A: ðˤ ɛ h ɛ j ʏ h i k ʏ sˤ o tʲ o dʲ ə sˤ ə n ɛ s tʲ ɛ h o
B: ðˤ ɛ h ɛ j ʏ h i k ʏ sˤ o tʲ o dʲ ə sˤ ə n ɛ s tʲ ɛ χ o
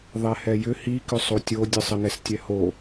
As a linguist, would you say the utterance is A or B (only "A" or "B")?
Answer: A